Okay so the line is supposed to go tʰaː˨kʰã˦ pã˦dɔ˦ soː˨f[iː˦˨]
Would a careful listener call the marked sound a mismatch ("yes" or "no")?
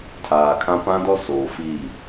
no